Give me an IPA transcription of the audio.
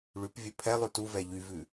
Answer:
ɭ ʉ p vʲ ɵ pʰ ɛ lˠ ʉ t u v ɛ ʎ y v ʉ

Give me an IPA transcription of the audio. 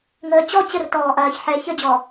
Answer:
ŋ əː t͡ɕ ɔ t͡ɕ ə r t ɔː ʔ ɐː ç ħ ɛ ç ə d͡ʑ ɔ

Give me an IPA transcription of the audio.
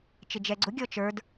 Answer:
t͡ʃ ɪ d͡ʒ ɛ ɡ͡ǀ ʊ ɡʲ ɔ t͡ʃ ə˞ d

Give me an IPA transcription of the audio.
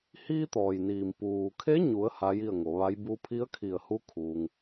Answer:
h iː˧ t̪ ɔː˩ j n iː˩ m p uː˩ kʰ e˧˥ ɲ u˩˧ ə̯ h a˧˥ j i˥˨ ə̯ ŋ o˩˧ ʋ a˧˥ j b u˧ pʰ i˧˥ ə̯ kʰ i˧˩ ə̯ h u˧˥ kʰ uː˧ ŋ

